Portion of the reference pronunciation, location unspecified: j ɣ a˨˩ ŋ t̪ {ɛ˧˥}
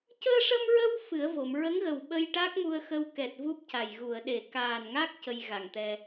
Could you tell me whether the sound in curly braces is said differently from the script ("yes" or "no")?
yes